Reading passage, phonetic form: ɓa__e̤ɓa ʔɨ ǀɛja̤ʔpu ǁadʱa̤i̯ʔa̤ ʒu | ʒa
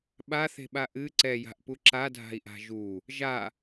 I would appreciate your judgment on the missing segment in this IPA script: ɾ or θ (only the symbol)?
θ